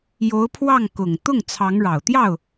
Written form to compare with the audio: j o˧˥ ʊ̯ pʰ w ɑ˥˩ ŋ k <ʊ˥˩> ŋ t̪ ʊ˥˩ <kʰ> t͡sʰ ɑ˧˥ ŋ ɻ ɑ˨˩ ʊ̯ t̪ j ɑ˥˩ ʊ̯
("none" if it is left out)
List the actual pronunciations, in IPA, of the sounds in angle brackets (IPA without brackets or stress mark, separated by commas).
ʊ˨˩, ŋ